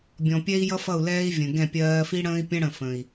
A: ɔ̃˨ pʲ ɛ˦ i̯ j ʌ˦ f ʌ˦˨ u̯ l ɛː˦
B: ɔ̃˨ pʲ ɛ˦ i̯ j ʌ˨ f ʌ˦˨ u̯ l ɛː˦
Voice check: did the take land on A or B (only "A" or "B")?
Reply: A